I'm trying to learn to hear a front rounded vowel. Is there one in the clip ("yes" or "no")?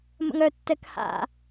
yes